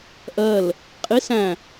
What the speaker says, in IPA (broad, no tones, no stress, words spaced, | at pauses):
ʔɜl | qʼi sæ̃